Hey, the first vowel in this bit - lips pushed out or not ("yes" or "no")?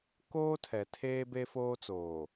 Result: yes